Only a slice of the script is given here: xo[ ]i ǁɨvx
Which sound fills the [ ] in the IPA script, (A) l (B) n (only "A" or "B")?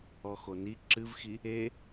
B